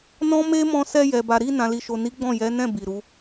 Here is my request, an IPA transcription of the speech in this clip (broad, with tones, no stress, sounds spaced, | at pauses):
n ɔ̃˦ m e˦ m ɔ̃˧ s ɛ˧ j ɛ˨ b a˨ ɾ i˧ n ã˨ l i˨ ʃ o˨ n i˨˦ ɡ͡b ɔ̃˦˨ j ɛ˨˦ n ɛ̃˦˨ b i˨ ɾ u˨˦